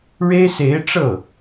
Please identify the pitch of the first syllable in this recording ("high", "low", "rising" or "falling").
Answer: high